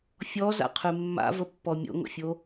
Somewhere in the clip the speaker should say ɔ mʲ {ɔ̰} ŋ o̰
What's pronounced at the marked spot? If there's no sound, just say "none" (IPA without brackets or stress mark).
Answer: o̰